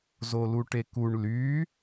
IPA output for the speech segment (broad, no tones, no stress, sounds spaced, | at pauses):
z o l u ʈ e k u ɳ l y